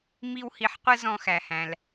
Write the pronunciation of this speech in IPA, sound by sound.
mi˥whi˧ħ qʷə˥zɔ̃˧ xæ˩hæ̃˩l

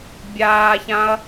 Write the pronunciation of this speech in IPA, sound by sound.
bʲaːçãɐ̯

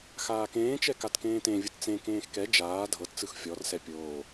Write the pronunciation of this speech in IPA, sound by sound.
xaːkẽːt͡ʃɛ katkẽːtẽvʲɯt t͡sẽkẽːx kɛ d͡ʒaː dʱɤtt͡sɯx fʲɔrsɛ pʲoː

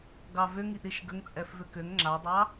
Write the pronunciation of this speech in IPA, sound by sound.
ɡɑvʏŋiʔ ɾiʃɡəŋ t͡sʼɛfvʏkʏŋ ŋ͡ǁadˤɑ

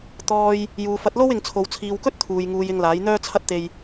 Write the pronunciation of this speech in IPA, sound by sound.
t̪ɔː˧j | juː˨fɐ˨˥t̚lo˥w ɪ˧ŋt͡sʰo˧wt͡sʰiː˧w kɵ˥t̚t̪ʰuː˨j ŋuː˧jɪ˧ŋlaː˨˥jn̪œː˥ t͡sʰɐ˧t̚t̪e˨j

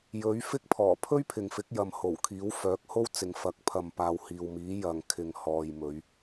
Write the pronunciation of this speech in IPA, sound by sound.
jɵ˨˥ɥfɪ˥k̚pʰɔː˨˩ pʰɵ˥ɥpʰɪ˨ŋfɪ˨˥k̚ jɐ˨mho˨˩wkʰiː˨˥w fœː˨˥k̚ho˥wt͡sɪ˨ŋ fɐ˨˥k̚pʰɐ˨m paː˨whiː˨wmiː˨˥ jɐ˨ŋkʰɪ˨ŋhɔː˨j mɵ˨˧ɥ

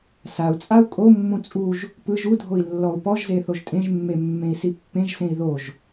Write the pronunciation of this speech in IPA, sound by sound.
sau̯t͡sʼau̯ kʼomːũ t͡sʼuʒ | pɯʒ udʱoi̯ lːɔu̯pɔʒze θoʒtʼẽʒmːe mːẽi̯sipːẽʒsẽi̯ ðoʒ

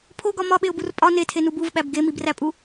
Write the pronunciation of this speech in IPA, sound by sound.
pʰoɡɒ mɒɓeʊ̯bur pʼɒ netʰenu buvɓæb ɡemibræpʼu

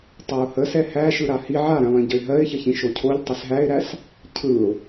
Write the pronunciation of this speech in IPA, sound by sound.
tˤæʊ̯həsɛ hæʃɯɾa hi ʕaɾɛ̃lˠĩ ɟəɪ̯ɦɜɪ̯çə çĩʃocʰoʎ tˤɘsɦæɪ̯ɾæs | cʰɯʊ̯

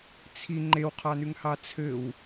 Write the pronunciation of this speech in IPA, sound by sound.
t͡sʰi ŋ͡ǃewqʰɑnʉŋhɑ t͡sʰɘw

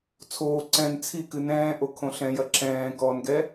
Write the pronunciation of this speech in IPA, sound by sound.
t͡sʰoː ǀɛ̃n t͡sʰikɨ nɛ̃ːʔo kʰõɬɛ̃jɐ ǁɛ̃ː kɔnɡɛ

